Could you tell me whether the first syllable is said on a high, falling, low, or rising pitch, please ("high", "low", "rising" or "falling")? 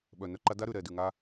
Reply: low